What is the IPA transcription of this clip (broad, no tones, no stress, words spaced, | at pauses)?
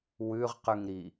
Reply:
wʉʁqʉŋɾi